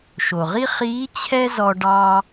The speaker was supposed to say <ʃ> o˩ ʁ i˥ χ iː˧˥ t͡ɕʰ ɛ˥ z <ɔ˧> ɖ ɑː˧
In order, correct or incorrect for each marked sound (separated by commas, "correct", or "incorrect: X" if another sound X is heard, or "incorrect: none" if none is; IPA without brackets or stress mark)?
correct, correct